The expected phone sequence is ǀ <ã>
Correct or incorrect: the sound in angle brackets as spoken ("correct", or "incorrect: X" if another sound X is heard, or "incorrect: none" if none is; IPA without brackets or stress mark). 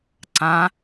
correct